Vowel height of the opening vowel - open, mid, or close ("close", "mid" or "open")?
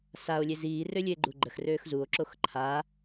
open